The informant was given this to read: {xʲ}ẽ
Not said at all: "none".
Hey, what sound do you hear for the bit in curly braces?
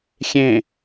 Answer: xʲ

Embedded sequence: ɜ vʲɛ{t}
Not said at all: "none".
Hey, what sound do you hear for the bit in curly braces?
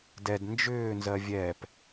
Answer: p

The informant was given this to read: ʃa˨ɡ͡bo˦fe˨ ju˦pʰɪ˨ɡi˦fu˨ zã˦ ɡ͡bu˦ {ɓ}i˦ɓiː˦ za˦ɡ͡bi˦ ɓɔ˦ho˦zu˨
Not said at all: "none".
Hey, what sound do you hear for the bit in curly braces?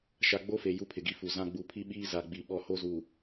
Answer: pʰ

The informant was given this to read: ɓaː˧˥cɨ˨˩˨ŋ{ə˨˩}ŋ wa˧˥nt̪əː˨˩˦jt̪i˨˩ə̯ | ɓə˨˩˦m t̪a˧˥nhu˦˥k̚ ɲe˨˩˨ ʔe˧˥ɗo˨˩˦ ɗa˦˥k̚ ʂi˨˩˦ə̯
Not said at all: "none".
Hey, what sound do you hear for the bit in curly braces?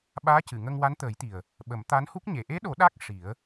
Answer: ə˧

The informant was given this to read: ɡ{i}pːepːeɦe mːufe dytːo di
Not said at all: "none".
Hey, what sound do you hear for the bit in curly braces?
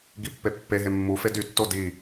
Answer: i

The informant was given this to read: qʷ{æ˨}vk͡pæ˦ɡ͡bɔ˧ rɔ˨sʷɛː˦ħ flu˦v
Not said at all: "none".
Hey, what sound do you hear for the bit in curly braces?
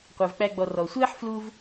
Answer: æ˧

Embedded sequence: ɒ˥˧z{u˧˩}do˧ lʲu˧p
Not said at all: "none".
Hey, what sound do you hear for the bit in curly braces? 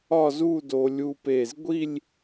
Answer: u˥˧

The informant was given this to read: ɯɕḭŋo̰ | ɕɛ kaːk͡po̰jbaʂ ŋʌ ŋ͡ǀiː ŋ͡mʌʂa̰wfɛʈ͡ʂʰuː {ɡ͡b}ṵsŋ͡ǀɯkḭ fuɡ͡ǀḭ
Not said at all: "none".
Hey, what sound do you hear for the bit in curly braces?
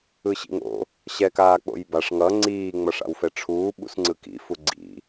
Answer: ɓ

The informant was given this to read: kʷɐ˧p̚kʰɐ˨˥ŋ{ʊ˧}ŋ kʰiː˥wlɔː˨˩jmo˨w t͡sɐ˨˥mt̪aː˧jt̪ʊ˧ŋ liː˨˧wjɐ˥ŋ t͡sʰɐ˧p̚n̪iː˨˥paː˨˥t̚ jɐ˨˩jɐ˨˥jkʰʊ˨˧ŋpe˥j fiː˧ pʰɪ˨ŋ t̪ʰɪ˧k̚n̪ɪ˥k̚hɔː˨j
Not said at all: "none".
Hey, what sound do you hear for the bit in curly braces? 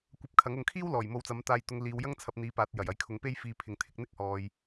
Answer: ʊ˧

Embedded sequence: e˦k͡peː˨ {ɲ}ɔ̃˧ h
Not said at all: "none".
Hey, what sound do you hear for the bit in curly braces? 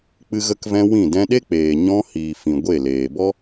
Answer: ɲ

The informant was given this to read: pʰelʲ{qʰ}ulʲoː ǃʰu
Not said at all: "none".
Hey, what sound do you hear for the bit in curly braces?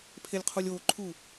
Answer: qʰ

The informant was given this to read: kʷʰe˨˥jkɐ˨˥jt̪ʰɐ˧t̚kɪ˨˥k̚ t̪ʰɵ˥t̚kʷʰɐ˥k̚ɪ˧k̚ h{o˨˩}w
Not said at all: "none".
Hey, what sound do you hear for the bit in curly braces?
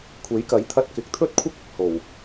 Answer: o˨˩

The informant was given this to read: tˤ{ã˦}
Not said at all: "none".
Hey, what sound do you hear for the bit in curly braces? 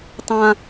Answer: ã˦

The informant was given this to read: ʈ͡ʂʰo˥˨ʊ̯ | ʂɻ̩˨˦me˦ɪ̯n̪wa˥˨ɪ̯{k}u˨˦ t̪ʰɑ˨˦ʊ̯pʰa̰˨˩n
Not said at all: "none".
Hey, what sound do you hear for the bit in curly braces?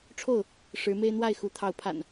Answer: x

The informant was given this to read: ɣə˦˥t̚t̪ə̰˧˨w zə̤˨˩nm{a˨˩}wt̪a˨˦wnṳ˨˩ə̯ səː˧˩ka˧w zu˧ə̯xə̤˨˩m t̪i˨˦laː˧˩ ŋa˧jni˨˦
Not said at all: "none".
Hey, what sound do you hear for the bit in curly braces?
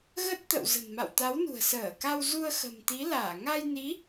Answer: a̰˧˨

